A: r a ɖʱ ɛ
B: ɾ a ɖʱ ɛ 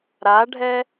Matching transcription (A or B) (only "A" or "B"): B